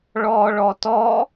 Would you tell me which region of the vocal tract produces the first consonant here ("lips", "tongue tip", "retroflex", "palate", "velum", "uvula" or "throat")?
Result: retroflex